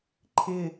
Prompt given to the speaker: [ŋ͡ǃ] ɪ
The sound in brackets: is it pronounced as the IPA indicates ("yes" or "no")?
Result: no